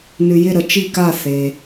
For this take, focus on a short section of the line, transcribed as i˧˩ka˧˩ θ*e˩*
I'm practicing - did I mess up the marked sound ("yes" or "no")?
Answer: no